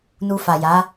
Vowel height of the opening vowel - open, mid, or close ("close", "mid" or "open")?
close